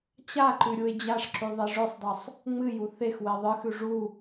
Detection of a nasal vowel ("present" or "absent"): absent